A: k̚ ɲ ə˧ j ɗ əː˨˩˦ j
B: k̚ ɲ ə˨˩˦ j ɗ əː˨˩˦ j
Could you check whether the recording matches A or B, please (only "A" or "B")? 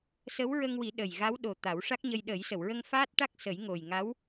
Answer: A